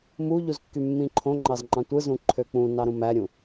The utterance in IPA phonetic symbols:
m u ʎ u z kː y mː ĩ ǃʰ õ ŋ͡ǃ ɑ z ŋ͡ǃ ɑ̃ tʷ ɯ z ũ ǃʰ ø k͡p ũ n ɑ ɾ ũ m æ ɾʲ ũ

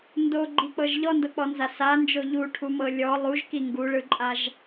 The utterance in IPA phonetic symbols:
n d o ɡ͡ǃ i k͡p ɤ ʒ ʎ ɔ n d ɤ k͡p ɔ n z a s a n d͡ʒ o ʎ u ʈʰ u m ɤ lʲ ɔ lˠ u ʒ k i ŋ ɡ u ɭ ɯ ǃʼ a ʒ

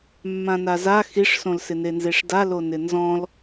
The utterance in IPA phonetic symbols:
mː ã n a z a x i ʂ s õ l s ɪ n e n z e ʂ d a l o n ɪ n z ɔ̃ l

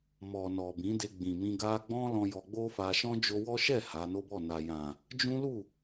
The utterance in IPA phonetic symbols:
m ɔ˨ n ɔ˨ b ĩ˨˦ d e˧ ɡ͡b ĩ˨ m ĩ˧ ɡ a˧ ɡ͡b ɔ̃˦ l ɔ̃˧ j ɔ˧ ɡ͡b o˦ f a˧ ʃ ɔ̃˦ d͡ʒ o˧ w ɔ˦ ʃ ɛ˦˨ h a˨˦ n o˦ b ɔ˦˨ n a˨ j ã˨ | d͡ʒ ũ˦ l u˦˨

